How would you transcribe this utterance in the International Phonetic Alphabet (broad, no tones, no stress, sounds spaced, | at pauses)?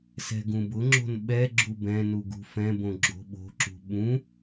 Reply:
s ɛ̤ ɡ ũ b ʊ ŋ͡ǁ o̤ n ɓ ɛ ɡ͡ǁ u b ɛ̃ n u ɡ ṳ f ɛ̃ b õ ɡ͡ǁ o̤ ɓ o̤ ǁ ṳ ɓ ũ